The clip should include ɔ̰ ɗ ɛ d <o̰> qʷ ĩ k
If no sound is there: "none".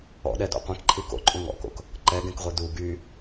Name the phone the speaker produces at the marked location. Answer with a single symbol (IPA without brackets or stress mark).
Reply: o̰